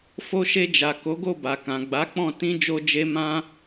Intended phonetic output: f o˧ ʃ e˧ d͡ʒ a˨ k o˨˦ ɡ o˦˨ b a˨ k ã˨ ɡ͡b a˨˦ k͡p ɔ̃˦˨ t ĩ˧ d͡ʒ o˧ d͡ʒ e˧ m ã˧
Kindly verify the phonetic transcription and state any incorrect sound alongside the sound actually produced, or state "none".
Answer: none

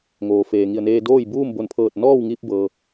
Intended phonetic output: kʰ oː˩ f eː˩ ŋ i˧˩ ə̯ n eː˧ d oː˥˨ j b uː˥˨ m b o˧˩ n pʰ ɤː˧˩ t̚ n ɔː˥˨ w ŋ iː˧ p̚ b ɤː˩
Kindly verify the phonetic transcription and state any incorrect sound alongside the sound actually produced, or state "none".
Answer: kʰ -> ŋ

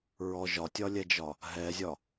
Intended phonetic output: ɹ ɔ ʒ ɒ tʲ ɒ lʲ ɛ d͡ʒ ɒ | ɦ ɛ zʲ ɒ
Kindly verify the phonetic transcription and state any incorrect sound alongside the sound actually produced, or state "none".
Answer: none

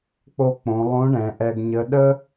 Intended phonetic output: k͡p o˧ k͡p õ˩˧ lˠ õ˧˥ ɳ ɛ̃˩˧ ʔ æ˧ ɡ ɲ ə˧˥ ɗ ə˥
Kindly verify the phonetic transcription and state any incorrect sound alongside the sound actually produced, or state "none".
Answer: æ˧ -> ɛ˧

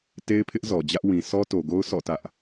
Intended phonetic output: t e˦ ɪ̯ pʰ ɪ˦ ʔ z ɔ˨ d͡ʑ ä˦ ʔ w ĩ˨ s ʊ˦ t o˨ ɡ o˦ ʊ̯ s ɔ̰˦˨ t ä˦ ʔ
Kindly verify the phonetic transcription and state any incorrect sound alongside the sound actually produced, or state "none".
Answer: ʊ˦ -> ɔ˦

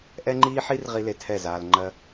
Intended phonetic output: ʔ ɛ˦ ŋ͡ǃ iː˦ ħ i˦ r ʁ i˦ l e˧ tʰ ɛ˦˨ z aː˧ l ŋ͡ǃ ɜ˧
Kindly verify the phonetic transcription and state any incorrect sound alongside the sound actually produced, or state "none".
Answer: none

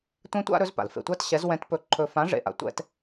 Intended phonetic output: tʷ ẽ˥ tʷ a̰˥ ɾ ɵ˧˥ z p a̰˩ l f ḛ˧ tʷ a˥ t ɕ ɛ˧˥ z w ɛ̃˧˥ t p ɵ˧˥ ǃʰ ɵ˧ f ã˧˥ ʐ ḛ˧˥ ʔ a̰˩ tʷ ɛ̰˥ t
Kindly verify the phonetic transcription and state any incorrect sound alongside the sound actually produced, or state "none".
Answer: none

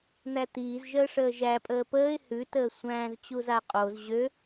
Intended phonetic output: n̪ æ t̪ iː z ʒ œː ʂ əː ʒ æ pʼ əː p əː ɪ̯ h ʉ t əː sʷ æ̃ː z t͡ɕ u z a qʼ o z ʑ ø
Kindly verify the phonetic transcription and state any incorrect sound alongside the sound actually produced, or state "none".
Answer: œː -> əː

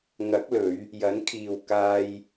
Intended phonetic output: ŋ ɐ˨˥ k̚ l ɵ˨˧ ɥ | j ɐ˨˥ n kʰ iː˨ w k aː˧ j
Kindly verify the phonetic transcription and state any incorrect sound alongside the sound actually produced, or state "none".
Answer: none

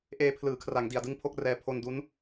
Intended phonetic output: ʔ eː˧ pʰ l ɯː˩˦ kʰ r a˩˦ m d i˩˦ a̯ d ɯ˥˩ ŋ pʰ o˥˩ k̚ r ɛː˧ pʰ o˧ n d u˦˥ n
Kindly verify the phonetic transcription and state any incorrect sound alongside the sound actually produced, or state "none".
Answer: m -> ŋ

